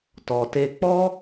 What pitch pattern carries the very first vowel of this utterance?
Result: low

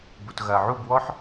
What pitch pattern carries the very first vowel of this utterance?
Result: low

